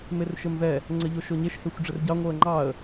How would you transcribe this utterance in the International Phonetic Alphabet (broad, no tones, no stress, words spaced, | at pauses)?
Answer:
merʃɘmvɛ | ŋ͡ǀɘʎoʃoɲeʃ hexʷɖ͡ʐɘrɟɑ ŋʷɤə̯ŋ͡ǃɑə̯